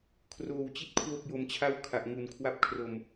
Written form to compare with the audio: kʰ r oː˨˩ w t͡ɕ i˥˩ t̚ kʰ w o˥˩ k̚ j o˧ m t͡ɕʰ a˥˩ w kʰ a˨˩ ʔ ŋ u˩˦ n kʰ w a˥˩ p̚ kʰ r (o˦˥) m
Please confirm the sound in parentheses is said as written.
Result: no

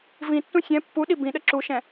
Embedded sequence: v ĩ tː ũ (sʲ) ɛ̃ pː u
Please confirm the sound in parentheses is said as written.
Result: yes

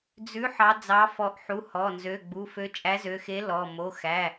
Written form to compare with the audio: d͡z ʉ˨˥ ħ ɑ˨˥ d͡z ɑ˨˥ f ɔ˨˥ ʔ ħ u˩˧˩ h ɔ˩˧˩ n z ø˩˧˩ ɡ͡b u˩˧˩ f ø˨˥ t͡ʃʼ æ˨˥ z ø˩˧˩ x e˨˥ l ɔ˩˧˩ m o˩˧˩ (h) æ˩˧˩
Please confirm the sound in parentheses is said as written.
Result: no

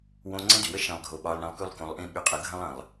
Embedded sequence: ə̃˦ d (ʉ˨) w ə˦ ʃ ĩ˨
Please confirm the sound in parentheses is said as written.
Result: yes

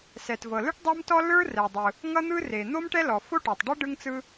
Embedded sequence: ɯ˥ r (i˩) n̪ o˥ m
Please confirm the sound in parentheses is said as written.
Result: no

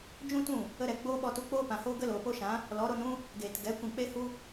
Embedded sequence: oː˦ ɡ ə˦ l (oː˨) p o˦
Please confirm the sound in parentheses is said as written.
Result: yes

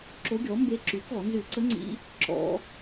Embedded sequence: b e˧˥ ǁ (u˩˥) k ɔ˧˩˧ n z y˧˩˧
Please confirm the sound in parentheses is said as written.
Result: no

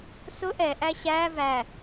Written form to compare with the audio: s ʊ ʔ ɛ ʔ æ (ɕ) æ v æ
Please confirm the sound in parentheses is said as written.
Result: yes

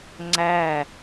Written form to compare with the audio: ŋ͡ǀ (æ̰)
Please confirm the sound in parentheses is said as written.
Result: no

